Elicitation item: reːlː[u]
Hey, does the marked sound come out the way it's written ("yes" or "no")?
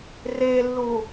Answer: no